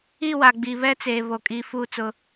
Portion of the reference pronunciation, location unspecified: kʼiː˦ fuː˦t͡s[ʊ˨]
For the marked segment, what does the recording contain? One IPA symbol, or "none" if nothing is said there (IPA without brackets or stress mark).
ʊ˦